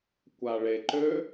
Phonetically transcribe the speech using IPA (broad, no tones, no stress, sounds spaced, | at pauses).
kʷ a ɭ e ǃ ø